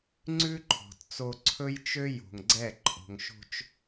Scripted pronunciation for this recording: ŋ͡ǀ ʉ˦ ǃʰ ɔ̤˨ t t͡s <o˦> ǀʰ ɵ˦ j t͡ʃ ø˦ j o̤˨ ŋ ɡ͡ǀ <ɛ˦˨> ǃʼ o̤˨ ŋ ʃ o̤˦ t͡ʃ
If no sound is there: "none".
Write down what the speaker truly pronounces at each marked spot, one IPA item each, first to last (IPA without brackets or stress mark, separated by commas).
o˦, ɛ˦˨